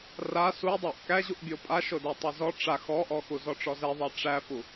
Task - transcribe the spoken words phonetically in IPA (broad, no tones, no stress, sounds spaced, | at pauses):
r a s u dˤ a ʔ k æ ʑ u ʔ bʲ o pʼ a ʃ o d æ tˤ æ z ɔ ʈ͡ʂ a x ɔ ʔ ɔ x u z ɔ ʈ͡ʂ ɔ z ɛ ðˤ æ ʈ͡ʂ æ f u